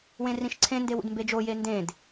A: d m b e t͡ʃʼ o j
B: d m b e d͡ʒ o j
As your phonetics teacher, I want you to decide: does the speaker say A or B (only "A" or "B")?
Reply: B